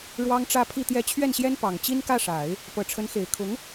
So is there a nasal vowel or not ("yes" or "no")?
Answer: no